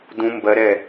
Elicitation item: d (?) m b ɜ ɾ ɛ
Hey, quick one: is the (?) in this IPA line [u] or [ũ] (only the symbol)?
ũ